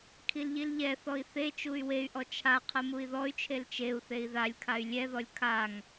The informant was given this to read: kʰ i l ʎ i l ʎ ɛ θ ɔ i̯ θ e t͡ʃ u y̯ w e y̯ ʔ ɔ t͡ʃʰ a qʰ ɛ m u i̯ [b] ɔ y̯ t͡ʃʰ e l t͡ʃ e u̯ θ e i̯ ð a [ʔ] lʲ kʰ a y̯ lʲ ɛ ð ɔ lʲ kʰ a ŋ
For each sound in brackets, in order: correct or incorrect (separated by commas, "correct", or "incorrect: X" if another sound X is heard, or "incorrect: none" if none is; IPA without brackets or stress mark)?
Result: incorrect: ð, incorrect: none